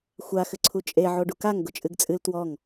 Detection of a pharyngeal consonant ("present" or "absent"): present